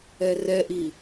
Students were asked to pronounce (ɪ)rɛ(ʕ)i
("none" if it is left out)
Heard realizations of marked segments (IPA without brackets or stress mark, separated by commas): ɛ, ʔ